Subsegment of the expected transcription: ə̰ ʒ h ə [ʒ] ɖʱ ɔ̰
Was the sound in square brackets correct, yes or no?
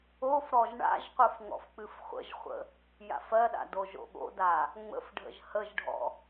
yes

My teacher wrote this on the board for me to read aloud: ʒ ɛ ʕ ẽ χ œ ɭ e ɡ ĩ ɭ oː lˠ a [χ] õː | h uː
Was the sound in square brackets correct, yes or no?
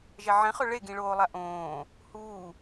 no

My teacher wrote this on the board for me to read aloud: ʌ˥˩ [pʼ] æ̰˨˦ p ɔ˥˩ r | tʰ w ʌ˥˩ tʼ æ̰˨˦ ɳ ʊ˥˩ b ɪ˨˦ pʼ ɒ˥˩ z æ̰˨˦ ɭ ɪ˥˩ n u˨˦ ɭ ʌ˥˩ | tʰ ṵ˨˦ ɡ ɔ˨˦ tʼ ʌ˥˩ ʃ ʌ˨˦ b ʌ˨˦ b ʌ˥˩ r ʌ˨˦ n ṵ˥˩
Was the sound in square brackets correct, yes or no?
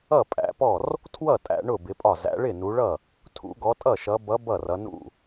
yes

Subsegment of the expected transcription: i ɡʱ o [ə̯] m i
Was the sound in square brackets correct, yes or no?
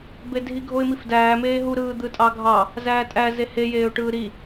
no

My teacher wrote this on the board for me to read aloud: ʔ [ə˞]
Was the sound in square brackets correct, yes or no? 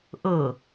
no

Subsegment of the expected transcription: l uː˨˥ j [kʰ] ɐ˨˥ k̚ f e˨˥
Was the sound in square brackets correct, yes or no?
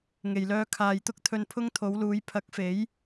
no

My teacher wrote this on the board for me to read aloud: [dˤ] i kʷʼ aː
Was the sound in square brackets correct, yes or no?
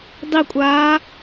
yes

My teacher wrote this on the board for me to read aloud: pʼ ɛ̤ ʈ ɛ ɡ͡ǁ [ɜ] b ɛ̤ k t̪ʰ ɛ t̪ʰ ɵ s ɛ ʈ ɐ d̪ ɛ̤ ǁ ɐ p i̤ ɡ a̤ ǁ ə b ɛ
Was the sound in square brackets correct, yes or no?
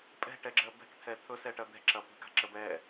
yes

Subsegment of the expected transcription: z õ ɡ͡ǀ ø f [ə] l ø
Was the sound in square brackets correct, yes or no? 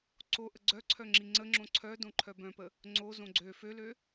no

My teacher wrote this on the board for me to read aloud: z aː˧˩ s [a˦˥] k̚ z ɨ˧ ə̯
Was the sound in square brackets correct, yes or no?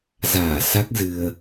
yes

